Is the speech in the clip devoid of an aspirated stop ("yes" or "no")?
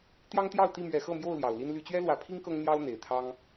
no